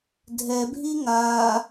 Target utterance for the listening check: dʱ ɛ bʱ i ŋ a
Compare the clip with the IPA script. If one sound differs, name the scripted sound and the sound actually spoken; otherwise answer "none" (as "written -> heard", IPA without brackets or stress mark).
none